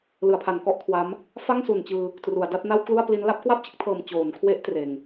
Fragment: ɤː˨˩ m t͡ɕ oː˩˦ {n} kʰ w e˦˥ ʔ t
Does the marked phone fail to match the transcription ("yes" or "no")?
no